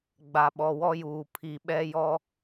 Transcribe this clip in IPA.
ɡ͡b a˨ ɓ ɔ˨ w ɔ˦ j uː˨ pʰ i˨ ɓ ɛ˦ j ɔ˦

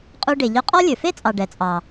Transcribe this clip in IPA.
qʼ u˧ ɖ e˩ ʎ œ˧ qʼ ɔ˥ lʲ ɵ˩ f e˥ t͡sʼ ɑ˩ ɖ ɛ˩ t͡sʼ ɑ˩

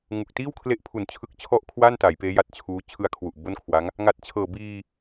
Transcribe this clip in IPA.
ŋ u˨˩ k̚ t iː˥˩ w kʰ l e˦˥ ʔ pʰ u˨˩ n t͡ɕʰ ɯ˦˥ k̚ t͡ɕʰ ɔ˥˩ ʔ kʰ w a˥˩ n t a˩˦ j p eː˦˥ j a˦˥ t̚ t͡ɕʰ uː˦˥ t͡ɕʰ ɯ˧ a̯ kʰ w u˨˩ ʔ b o˥˩ n kʰ w a˦˥ ŋ | ŋ a˨˩ t̚ t͡ɕʰ ɤː˨˩ b iː˧

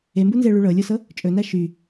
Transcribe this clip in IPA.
e m b u n z e ɭ y ɭ ɤ lʲ o s ɤ | t͡ʃʼ ɵ n æ ʃ y

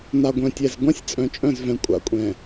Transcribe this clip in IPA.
n a˨ ɡʷ œ̃˨ tʲ ɛ˨ z ɡʷ ã˦ sʲ t͡sʼ œ̃˨ t͡ʃʼ œ̃˦˨ z v ɛ̃˨ kʷʼ a̰˨ kʷʼ ɛ̃˨

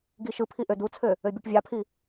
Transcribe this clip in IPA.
ɡ i ʃ ɯ pʰ i ʔ ø d u t͡sʰ ø | ø bʲ u ʈ vʲ ɑ pʰ i

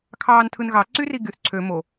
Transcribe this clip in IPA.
kʰ ɑː n tʰ ɯ n ɣ ɑ ǀ y r i ɡ y θ ǀʰ ø m o

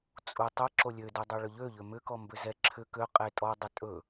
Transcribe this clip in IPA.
t͡sʼ u tˤ ɵ ǁ o lʲ ø d u dˤ ɵ ɭ ʏ ʎ ø ʎ ʏ m ʏ k ɔ m b ʏ z ɛ ǁʰ ʏ k ø qʼ e tʼ ɔ dˤ ɐ tʼ ɵ

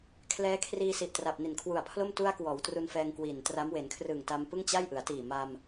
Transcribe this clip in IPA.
kʰ l ɛː˦˥ kʰ r iː˧ s i˨˩ ʔ t r a˨˩ p̚ n i˨˩ n kʰ w u˨˩ a̯ pʰ l o˥˩ m t u˧ a̯ k w ɔː˩˦ w t r u˧ n f ɛː˧ ŋ k w i˨˩ n t r a˦˥ m w e˩˦ n kʰ r ɯː˨˩ ŋ t a˧ m p ɯ˥˩ ŋ t͡ɕ a˥˩ j ʔ ɯ˩˦ a̯ t iː˨˩ m a˧ m

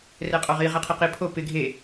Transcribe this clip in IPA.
r ɛ qʼ ɔ ʁ i ʁ ɛ qʰ i q i pʰ o p ɪ ɡʱ e

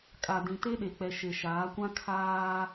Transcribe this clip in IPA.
kʼ a˨ d ĩ˨ t e˦ ɗ e˨ k͡p ɛ˨ ʃ e˨ ʃ aː˨˦ kʷ ã˦ kʰ aː˦

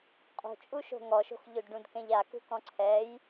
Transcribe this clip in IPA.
qʼ o̤ t͡ʃʼ u ʃ o̤ ŋ ɔ ʃ o̤ x ʎ o d ɖ ũ d k ɛ̃ ʎ a k ṳ k ɔ̃ ǀʰ ɛ j

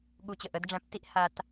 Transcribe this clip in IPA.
ɠ u˧ t͡ɕ ə˩ ʔ ə˧˥ d ɖ͡ʐ æ̃˧˥ p t i˥ ʔ h a˧ t

